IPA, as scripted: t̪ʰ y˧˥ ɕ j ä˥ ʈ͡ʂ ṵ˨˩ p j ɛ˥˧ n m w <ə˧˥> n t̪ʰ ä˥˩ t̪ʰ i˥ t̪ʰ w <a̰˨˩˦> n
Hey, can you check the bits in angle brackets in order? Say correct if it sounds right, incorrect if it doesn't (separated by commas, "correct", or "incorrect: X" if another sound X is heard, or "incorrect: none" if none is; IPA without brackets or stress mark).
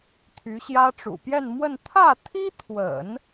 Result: incorrect: ə˥˧, incorrect: ə̰˨˩˦